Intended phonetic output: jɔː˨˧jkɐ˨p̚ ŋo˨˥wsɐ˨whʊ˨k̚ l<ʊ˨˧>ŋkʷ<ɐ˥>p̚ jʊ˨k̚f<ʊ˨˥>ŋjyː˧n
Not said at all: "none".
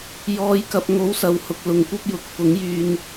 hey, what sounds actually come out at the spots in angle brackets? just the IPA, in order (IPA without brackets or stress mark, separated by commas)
ʊ˨˧, ɐ˥, ʊ˨˥